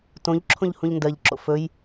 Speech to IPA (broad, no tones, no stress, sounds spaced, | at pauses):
t õ ʎ ǁʰ õ ʎ h ũ ʎ n d ɜ ʎ ǁ o̰ f ɵ j